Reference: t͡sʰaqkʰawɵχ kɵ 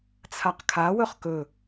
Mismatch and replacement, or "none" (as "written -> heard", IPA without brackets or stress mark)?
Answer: none